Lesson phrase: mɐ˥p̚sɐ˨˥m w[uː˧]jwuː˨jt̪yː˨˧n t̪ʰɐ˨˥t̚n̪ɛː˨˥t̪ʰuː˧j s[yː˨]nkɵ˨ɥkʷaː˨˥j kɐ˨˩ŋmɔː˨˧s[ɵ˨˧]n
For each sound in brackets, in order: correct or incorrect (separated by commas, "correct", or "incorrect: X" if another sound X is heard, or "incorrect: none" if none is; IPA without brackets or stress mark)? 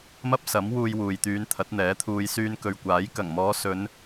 correct, incorrect: yː˧, correct